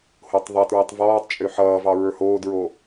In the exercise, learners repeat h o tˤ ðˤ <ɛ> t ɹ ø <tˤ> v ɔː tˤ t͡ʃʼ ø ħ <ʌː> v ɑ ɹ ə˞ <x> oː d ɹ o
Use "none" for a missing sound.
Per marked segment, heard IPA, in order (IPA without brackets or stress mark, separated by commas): ɛ, tˤ, ʌː, h